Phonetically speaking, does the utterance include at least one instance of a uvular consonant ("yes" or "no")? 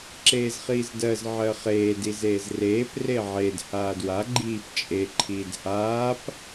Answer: yes